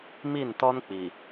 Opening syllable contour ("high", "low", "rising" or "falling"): falling